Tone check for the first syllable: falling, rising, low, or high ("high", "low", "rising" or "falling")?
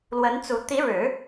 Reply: rising